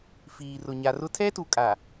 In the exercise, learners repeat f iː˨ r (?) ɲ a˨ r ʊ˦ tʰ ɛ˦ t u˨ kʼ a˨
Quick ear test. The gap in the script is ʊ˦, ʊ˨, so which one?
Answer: ʊ˨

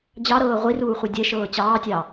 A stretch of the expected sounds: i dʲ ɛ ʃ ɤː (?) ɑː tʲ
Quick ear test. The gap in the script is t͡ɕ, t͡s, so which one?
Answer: t͡ɕ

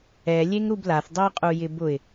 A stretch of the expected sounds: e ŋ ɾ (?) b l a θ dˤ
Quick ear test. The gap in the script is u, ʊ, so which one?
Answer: u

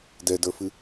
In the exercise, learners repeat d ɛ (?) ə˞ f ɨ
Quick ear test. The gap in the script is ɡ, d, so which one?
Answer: d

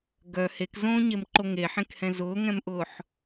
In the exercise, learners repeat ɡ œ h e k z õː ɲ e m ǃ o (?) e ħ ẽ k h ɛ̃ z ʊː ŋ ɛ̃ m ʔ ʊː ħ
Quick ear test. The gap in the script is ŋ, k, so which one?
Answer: ŋ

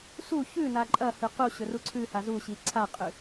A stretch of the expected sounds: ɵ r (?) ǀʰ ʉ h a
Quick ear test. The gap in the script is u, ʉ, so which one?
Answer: u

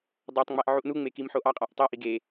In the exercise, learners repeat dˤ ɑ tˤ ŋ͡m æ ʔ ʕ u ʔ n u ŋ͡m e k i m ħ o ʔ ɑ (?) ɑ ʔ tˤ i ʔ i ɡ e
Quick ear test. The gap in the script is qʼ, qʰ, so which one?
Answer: qʼ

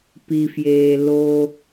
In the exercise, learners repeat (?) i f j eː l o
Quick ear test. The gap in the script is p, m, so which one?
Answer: p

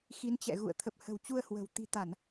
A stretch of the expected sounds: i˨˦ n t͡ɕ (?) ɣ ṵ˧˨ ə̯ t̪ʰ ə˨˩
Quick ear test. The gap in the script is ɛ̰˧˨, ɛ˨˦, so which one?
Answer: ɛ̰˧˨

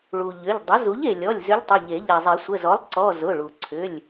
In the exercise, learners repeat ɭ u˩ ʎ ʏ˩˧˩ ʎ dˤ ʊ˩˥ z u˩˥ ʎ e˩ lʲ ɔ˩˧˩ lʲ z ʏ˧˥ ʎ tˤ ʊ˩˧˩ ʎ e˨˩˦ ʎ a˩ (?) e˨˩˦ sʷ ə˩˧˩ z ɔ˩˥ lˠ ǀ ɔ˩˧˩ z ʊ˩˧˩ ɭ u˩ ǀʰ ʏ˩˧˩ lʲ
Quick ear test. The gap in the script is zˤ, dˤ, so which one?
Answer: zˤ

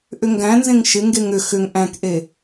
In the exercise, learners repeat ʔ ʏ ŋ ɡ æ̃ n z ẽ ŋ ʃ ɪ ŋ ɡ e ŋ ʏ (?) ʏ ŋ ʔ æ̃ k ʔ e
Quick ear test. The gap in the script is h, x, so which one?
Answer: x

